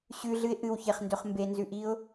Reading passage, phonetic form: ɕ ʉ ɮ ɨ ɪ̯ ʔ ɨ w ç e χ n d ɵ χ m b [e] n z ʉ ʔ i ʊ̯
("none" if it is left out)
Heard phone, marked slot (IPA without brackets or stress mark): e